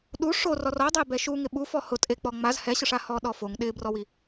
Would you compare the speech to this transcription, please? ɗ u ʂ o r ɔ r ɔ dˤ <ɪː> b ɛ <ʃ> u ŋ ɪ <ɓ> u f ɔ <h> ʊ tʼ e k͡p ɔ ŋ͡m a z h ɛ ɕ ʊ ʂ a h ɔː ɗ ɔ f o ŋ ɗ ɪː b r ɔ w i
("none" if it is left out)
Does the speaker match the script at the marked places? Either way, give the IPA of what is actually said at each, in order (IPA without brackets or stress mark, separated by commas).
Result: ɪː, ʃ, ɓ, h